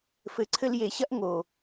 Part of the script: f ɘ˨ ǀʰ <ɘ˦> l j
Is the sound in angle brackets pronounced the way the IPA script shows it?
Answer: no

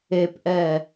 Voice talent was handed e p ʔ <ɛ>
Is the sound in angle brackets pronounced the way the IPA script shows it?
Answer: yes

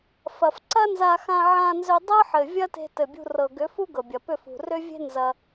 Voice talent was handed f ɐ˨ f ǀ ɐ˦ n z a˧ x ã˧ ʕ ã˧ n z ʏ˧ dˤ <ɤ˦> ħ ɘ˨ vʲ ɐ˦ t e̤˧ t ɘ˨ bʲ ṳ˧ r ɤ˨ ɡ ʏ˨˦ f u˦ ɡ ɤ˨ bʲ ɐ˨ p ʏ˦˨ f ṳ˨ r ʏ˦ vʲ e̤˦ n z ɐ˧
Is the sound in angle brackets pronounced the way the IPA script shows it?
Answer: yes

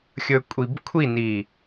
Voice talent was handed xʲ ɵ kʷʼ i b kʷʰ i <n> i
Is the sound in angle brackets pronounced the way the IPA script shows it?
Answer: yes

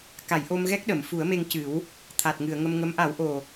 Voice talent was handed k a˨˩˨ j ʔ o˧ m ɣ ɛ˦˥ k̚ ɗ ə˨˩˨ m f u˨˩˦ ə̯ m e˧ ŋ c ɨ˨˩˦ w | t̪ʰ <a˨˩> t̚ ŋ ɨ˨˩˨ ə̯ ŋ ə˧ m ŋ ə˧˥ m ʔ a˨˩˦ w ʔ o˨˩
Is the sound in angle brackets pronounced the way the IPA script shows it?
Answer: yes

